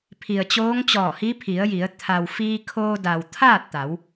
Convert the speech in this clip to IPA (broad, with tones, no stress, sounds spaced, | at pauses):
pʰ i˩ ə̯ t͡ɕ oː˧˥ ŋ t͡ɕ ɔː˧˩ h i˧˥ pʰ i˩˧ ə̯ j i˩˧ ə̯ t̪ʰ a˩ w f iː˧ kʰ oː˧ d a˩ w t̪ʰ aː˥˨ t̚ t̪ a˩˧ w